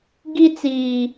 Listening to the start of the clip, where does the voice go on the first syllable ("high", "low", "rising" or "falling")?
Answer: high